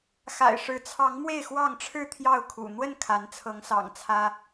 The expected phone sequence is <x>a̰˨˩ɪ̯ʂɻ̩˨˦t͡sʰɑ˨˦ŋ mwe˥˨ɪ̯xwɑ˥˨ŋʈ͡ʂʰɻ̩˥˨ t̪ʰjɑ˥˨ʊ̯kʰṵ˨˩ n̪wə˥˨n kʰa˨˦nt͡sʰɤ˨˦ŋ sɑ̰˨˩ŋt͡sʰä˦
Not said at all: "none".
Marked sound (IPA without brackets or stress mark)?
x